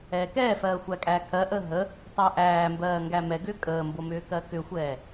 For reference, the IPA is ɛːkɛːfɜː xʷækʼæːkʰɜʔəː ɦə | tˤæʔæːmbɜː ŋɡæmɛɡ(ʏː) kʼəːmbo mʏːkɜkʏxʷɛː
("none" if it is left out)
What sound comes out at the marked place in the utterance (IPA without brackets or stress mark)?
ʏː